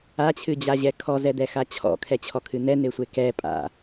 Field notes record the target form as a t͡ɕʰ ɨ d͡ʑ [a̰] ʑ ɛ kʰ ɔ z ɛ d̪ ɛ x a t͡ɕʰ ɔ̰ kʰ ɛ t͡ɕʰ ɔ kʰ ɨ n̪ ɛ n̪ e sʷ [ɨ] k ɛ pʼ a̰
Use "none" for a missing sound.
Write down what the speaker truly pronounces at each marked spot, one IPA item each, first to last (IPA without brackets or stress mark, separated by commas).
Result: a, e